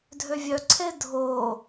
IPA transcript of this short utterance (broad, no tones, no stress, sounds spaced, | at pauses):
dʱ ø vʲ œ ǀʰ e dʱ o